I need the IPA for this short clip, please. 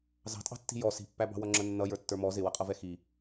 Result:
z ɑ̤ tʼ ɑ̤ tː i̤ j ɔ s i̤ pː æ b ɑ̤ w ʌ ŋ͡ǁ ə nː ʌ j ə˞ tː ə˞ m ɔ z ɪ w ʌ qʼ ʌ v ɛ x i

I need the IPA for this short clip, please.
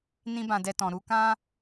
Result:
n ĩ˦ b ã˧ d ɛ˧ t ɔ̃˨ ɾ u˨˦ k ã˦

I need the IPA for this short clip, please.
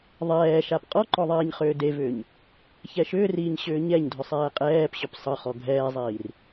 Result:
ðˤ ɛː ʃ a p qʼ ɔ ǃ ɔ ðˤ ɛː ɲ χ ʏː d e v ʏː ɲ | ç ɛ ʃ ʏː r iː ɲ ɕ ʏː ɲ ɛ ɲ dʱ ʏ sˤ ɛː qʼ ɛː p ɕ ʏ p sˤ ə χ ɔ ɡʱ ɛː zˤ iː r

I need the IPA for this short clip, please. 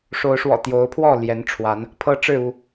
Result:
ʂ o˨˦ ʊ̯ ʂ w ɔ̰˨˩ t̪ j o˨˦ ʊ̯ pʰ w ɔ˥˨ l j ɛ˨˦ n ʈ͡ʂʰ w a˨˦ n | pʰ ɤ˦ ʈ͡ʂ ɻ̩˥˨ u˥˨

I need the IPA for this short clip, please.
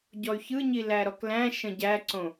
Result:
ɟ ɔ y̯ ç ɯ ɲ i l æ ɾ ɔ k l æ̃ ʃ ə̃ ɟ æ ǀ õ

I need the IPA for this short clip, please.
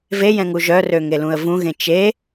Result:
v e j ɛ̃ ŋ u ʒ œ r ø ŋ e l ũ ə̯ v ũ ɣ ẽ t͡ʃ e

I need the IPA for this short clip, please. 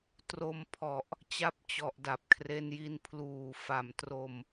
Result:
t r o˧ m pʰ ɔ˨˩ ʔ | t͡ɕ a˦˥ p̚ t͡ɕ ɔ˨˩ ʔ d a˨˩ p̚ kʰ r e˧ n j i˧ n pʰ l uː˨˩ f a˨˩ m t r o˧ m

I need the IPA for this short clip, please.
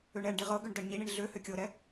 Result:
ø ɳ ɛ ɳ ɖ i ʁ ɤ ɡ ø ɳ d ɤ ɳ ɲ i ɳ i ɳ ɮ ø h ø kʲ ɤ ɾ ɛ

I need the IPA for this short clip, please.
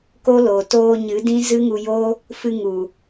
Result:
k o˦ l o˨ t oː˧ ɲ ɨ˨˦ d ĩ˦ z ɨ˦ ŋ u˧ j oː˦ | f ɨ˧ ŋ u˨

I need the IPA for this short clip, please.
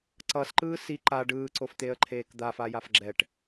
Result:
ǀ ʌ s ǃ ɯː s i ǃ a ɖ ɯː ǀ o f t̪ e ə̯ ǃʰ eː k d̪ a f a j a f ɡ͡ǁ ɛ ʈ

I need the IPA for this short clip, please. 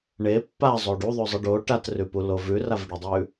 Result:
ɳ e pː a zˤ o ɖ u ðˤ ʉ zˤ ɨ ɖ o ʈ a t r ʉ p u l o v ʉ r a v ɖ ɨ dˤ ʉ

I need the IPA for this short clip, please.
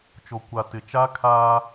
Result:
t͡ʃ o˨ kʷ a˨ t ɪ˨ t͡ʃ a˦ kʰ aː˦

